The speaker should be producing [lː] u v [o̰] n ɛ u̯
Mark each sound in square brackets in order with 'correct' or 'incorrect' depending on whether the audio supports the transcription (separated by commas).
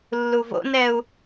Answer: correct, correct